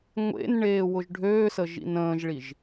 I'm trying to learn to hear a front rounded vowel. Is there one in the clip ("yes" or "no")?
yes